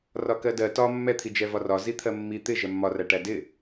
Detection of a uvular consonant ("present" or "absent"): absent